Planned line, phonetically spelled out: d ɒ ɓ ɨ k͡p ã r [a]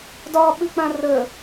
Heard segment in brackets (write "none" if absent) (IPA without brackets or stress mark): ə